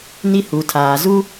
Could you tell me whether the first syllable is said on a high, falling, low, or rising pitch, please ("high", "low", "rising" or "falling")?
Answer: high